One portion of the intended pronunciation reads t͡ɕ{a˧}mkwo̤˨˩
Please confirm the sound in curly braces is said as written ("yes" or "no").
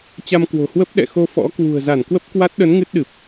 yes